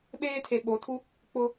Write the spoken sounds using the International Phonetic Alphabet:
ɓeː˦tʰe˨ɓo˨tʰu˦ | k͡pʊ˦

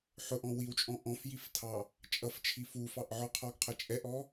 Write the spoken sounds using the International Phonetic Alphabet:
ħʊʔɔ̃ wiwt͡ʃʼɔ̃ ʔɔ̃fjiftʰɑ | t͡ʃʼʌft͡ʃʰi fufɑʔ ʕɔqʰɔɡqʰʌ t͡ʃʼɛʔɔ

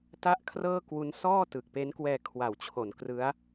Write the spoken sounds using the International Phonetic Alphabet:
ta˥˩ʔkʰrɤː˥˩kwu˦˥n sɔː˥˩tɯ˨˩k̚ pe˦˥nkwɛː˧ kʰwa˩˦wt͡ɕʰo˩˦n krɯ˦˥a̯

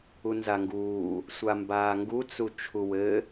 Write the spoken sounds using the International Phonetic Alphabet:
unzaŋɡuː | sʷambaːŋɡu t͡sut͡ʃʰuwɘ

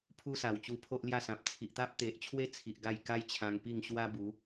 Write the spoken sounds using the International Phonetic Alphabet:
pʰu˦sa˨˩wt͡ɕu˧ pʰo˦ʔlja˥˧sã˨p̚ t͡sʰi˨ʔt̪a˦p̚t̪e˨ʔt͡ɕʰwe˦ t͡sʰi˨ʔɡa˥˧j ka˦j t͡ɕʰã˧ŋpi˥˧ŋ ɕwa˦bu˨˦

